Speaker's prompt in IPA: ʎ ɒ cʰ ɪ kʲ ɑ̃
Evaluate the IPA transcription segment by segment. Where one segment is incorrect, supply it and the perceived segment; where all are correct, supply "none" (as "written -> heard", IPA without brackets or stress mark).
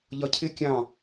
none